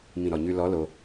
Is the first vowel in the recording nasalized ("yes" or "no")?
yes